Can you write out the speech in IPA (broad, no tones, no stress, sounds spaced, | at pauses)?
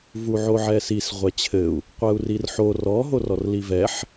v u ʕ o ʕ ɛ s i s ʁʷ ɛ t͡ɕʰ ɘ u̯ | qʷ ɛ u̯ r i r ħ o r ɔ ɦ o r ɔ r l i v ɛ ħ